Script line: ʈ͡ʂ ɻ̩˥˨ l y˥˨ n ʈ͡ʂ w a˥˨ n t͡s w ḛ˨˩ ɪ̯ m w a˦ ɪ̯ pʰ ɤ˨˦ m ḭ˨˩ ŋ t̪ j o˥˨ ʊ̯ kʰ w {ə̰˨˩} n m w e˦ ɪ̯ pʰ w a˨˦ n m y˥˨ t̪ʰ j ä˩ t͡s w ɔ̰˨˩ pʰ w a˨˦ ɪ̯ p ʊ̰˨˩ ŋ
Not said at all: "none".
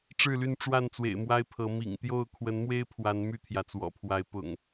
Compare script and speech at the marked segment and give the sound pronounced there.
ə˨˦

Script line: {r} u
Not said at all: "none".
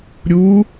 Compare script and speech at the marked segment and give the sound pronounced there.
ɾʲ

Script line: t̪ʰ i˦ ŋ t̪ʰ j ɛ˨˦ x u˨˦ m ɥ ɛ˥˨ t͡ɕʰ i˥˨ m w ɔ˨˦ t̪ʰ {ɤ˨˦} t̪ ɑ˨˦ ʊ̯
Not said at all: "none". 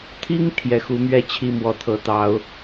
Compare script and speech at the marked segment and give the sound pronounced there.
ɤ˨˩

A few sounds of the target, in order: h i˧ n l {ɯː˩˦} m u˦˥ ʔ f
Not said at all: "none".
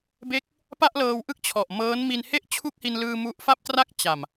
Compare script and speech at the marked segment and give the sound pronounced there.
ɯː˧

